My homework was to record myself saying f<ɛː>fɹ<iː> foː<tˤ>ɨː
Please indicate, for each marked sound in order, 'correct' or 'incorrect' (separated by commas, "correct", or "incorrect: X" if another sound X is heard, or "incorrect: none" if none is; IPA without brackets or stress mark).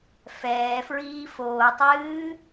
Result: correct, correct, correct